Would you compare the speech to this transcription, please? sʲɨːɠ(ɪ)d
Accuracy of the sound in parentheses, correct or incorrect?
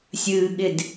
correct